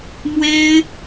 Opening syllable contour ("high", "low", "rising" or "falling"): high